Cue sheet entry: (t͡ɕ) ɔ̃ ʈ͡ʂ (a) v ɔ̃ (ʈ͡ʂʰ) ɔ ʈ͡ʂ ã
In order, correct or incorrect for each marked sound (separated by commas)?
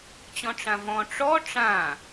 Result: correct, incorrect, incorrect